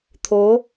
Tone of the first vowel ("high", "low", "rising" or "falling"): rising